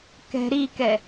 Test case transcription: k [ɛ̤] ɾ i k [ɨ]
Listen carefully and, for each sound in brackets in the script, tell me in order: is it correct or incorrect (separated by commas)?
correct, incorrect